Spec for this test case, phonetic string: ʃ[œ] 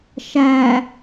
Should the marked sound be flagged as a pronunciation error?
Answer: yes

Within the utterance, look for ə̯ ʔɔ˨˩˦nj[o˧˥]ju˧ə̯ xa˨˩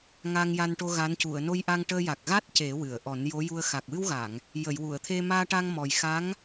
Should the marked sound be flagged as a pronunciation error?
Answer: no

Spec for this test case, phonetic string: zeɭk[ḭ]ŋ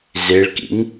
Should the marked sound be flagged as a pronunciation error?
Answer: no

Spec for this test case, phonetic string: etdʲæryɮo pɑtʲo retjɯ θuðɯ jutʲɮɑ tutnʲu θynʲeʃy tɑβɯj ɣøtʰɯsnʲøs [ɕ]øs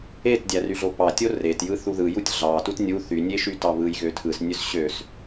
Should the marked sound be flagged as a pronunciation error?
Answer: no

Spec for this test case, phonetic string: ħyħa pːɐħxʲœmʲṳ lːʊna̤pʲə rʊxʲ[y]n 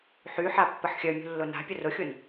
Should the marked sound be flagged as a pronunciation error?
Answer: yes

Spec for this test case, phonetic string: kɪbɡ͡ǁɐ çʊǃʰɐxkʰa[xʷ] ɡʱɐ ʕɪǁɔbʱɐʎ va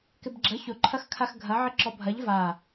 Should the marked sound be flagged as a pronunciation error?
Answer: yes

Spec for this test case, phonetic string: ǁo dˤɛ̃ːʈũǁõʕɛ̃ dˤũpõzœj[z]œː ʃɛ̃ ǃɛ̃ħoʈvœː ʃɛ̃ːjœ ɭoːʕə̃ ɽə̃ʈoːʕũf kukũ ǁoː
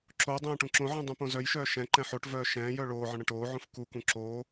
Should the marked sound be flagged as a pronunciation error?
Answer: yes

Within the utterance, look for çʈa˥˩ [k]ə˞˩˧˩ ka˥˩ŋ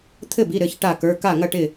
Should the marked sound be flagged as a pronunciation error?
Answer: no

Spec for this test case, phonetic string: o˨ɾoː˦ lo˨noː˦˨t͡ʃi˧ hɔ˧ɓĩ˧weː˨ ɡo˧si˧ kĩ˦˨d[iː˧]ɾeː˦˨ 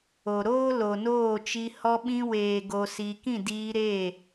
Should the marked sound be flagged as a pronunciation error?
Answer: no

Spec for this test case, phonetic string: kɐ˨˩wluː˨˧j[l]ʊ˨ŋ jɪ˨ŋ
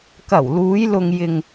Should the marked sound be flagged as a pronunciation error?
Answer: no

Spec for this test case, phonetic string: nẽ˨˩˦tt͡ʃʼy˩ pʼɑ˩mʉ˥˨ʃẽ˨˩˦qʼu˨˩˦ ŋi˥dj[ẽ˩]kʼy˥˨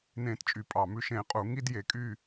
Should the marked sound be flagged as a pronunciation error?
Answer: yes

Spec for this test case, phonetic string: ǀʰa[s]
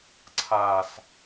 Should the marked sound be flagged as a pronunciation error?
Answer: no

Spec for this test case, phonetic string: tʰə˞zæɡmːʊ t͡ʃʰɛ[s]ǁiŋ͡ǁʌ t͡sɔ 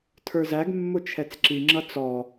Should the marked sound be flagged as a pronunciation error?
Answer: yes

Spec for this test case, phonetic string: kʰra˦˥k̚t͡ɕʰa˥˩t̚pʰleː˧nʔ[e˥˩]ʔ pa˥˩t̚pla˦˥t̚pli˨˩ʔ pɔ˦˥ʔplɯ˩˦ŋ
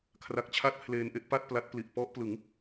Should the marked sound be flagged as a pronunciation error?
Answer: no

